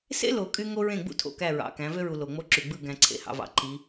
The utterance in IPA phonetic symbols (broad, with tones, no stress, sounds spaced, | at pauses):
s ḛ˦ l o˨ kʼ y˦ ŋ o˦ ɹ ẽ˦˨ ɡ͡b ṵ˦ tʰ o̰˨ k æ˦˨ ɹ ɑ̰˨ k æ̃˨˦ v ø˦ ɹ u˨ l o˨ ŋ͡m o˦ ǁ y˨ ɡ͡b ɯ˦˨ ɡ æ̃˨ ǀʰ ḛ˨ h ɑ̰˨ v ɑ̰˨ ǃ i˨˦